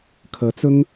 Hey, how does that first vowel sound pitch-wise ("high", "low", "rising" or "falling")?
rising